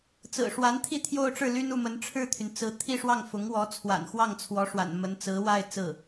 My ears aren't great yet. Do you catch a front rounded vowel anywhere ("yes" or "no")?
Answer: yes